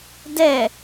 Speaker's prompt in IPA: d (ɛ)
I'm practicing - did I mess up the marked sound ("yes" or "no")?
no